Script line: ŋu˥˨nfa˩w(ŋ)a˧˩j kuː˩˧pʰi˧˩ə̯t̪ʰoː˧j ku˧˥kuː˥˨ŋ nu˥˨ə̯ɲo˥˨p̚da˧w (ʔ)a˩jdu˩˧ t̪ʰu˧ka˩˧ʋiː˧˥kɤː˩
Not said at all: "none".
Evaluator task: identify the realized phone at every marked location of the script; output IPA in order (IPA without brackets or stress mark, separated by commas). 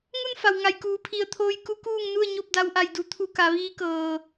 ŋ, ʔ